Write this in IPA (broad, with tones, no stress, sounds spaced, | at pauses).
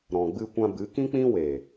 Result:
ɾ ɔ̃˨ ɡ͡b ɨ˧ kʷ ã˧ b ɨ˨˦ k ĩ˦ k͡p ĩ˦ w e˨